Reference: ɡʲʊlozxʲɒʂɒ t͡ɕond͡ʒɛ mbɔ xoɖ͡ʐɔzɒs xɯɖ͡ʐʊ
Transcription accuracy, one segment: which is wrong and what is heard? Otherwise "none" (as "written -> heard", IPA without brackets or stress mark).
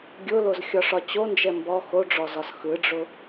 none